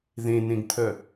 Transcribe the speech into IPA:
ðẽnẽɡt̪ʰœ

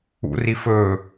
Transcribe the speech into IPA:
ṵri fɵ

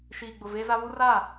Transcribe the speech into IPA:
ʃiː˨ɡ͡bʊ˨ veː˦za˦ βu˦ ra˦˨

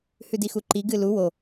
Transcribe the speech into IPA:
hʉdixuǃi ɡɨlu wo

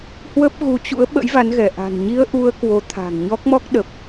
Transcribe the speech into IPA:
hwə˦˥p̚ɣu˨˦t͡ɕṵ˧˥ə̯ ɓə̰˧˥jva˨˦nɣɛ˧˩ ʔa̤˨˩nɲi˧ə̯ ʔu˧ə̯ kwo˨˦t̪ʰa̤˨˩ŋɲɔ˦˥k̚mɔ˦˥k̚ ɗə˨˩p̚

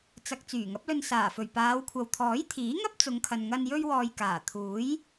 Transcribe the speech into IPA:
t͡sɐ˨k̚ t͡syː˨˩ŋɐ˨˥p̚lɵ˧n saː˨˩fɵ˨˩ɥpaː˨˧wkʷʰɐ˨w t̪ʰɔː˨˥jt̪ʰiː˨˥ŋɐ˥p̚ t͡sʊ˨˧ŋkʰɐ˨nŋɐ˧n jɵ˧ɥwɔː˨j kaː˨˩t̪ʰuː˨˥j

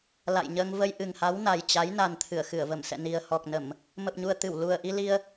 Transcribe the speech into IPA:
la̰˧˨jɲəː˧ŋ və˧jʔɨ˨˩ŋha˨˦w na˨˩jt͡ɕa˨˦j na˨˩n t̪ʰɨ˧˩ə̯xɨ˧˩ə̯və˧˩msɛ̰˧˨ ni˨˩ə̯hɔ˨˩k̚nə˧˩˨m | mə˨˩p̚ɲu˨˩ə̯t̪ɨ˧˩w lu˨˩ə̯ʔi˧li˧ə̯

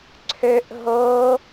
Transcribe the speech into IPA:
ǀʰøʔ ɦo

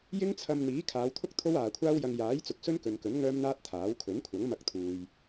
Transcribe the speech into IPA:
jɪ˥ŋt͡sʰɐ˧m n̪iː˨˥kʰaː˨˧wt̪ʰʊ˥k̚ t̪ʰo˥waː˨kʷʰaː˥wjɐ˧ŋ jaː˨˥jt͡sʊ˨k̚ sɵ˥nkɵ˨nkɵ˨˥n ŋœː˥mn̪aː˥t̚t̪ʰaː˨˥w kʰɵ˨˥nkʷʰɐ˨˥ŋmɐ˧k̚ t̪ʰuː˨j

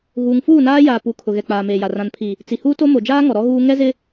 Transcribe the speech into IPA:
ɣuː˨ŋ fuː˦˨naː˦ jaː˨ pu˨˦kʰʊ˨ ɣɛ˨k͡paː˨meː˨ja˨ rã˨npʰi˨ | t͡si˨huː˦to˦ mo˨d͡ʒaː˦ŋɔ˨ ɾɔ˦ɣuː˦ ŋɛ˦zɪ˦

